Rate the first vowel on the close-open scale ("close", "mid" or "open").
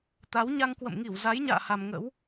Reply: open